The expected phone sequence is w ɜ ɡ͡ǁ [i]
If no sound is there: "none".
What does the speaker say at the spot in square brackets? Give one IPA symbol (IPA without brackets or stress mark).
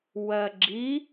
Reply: i